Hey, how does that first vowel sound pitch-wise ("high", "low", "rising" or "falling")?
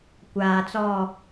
low